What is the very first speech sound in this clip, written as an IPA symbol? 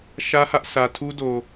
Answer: ʃ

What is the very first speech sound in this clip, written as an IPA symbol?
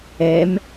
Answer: ɛ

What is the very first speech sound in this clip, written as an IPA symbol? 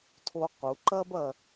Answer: tʰ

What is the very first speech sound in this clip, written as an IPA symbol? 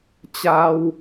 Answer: t͡ɕ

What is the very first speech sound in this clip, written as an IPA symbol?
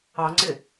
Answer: ɑ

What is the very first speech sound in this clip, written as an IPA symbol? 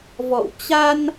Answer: v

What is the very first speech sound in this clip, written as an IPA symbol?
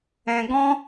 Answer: ɛ̃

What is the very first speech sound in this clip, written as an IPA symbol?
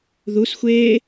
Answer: ð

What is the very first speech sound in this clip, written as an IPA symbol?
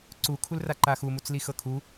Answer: ǀ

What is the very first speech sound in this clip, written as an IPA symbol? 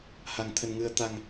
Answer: h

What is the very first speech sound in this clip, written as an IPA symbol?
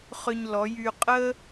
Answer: χ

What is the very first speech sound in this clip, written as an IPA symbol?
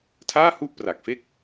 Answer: tʰ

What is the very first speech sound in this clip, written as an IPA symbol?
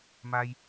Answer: m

